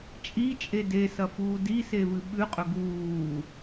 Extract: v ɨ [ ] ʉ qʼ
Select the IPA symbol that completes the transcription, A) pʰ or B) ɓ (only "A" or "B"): B